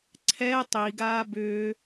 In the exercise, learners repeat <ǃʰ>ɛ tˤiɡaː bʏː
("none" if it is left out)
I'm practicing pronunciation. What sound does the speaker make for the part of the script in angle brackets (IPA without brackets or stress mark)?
ǀʰ